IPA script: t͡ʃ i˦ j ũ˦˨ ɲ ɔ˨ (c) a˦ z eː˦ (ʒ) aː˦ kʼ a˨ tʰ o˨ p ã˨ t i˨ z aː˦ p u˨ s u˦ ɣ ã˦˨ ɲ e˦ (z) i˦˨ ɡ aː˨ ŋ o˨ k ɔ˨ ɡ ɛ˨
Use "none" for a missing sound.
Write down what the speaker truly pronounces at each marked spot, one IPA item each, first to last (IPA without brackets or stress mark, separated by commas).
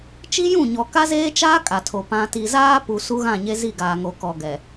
k, t͡ʃ, z